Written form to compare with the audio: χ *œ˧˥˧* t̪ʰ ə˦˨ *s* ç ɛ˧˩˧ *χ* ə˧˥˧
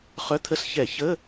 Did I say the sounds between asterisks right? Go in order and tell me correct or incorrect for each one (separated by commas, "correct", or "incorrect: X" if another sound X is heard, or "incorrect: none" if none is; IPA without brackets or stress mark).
correct, correct, incorrect: ç